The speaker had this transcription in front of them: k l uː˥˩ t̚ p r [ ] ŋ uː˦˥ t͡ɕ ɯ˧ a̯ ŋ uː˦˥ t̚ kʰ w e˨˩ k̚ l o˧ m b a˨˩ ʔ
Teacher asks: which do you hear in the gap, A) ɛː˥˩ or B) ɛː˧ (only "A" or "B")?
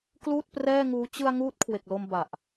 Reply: A